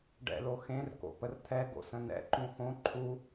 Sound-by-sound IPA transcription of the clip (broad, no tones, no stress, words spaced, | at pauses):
ɖɛ̰lo xẽrko̰pər t̪ʰɛɡo̰sə̃ nɛ̰ǃũ xõ ǃʰu